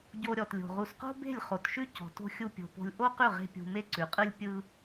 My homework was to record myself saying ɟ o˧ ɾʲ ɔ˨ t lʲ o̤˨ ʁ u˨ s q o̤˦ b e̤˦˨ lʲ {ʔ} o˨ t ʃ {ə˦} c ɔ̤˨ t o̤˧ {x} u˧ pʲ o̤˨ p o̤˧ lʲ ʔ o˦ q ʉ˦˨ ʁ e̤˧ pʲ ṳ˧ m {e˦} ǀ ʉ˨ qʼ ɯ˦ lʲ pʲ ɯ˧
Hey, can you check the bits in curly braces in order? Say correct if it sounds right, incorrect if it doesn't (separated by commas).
incorrect, incorrect, incorrect, correct